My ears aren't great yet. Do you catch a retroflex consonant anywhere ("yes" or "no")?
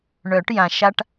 yes